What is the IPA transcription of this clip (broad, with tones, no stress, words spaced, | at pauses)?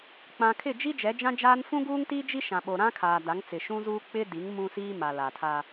k͡pã˨kʰɪ˦˨d͡ʒi˦ d͡ʒɛ˨˦d͡ʒã˦d͡ʒaː˦n fũ˦ɡuː˦ŋti˦d͡ʒi˦ ʃã˨ɓo˨ ɾã˦kʰaː˨ da˨˦ŋt͡sɪ˨ʃũ˦zuː˦ k͡pɪ˦di˨˦ŋ mũ˦siː˦ ma˨la˨ tʰa˦